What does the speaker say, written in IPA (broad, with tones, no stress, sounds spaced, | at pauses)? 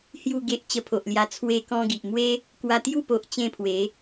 h j u˥˧ ɡ e˦ ʔ t͡ɕ ə˧ pʰ o˨ ʔ l j a˧ t͡sʰ w e˦ k ɔ̃˦ ɡ i˨ ʔ m w e˦ | k w a˧ t̪ j u˥˧ p o˨ ʔ t͡ɕ ẽ˥˧ pʰ w e˨˦